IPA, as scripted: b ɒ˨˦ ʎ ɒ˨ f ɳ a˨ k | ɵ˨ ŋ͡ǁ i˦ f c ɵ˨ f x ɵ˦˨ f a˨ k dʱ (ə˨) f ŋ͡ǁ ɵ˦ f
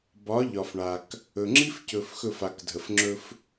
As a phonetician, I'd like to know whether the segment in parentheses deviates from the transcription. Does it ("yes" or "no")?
no